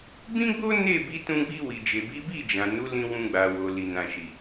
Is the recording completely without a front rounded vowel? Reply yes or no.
yes